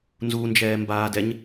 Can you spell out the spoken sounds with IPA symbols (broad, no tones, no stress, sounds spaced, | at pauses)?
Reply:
n z u n d͡ʒ ɛː m b aː d ɛ ɲ